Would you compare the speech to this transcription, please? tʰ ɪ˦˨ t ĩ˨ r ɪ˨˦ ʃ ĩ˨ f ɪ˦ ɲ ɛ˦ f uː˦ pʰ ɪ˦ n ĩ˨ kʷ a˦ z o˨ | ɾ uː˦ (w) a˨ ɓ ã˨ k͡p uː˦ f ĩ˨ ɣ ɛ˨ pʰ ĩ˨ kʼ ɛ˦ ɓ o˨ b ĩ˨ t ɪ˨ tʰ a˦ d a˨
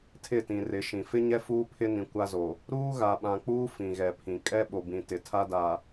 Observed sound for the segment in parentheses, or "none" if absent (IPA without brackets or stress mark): ɣ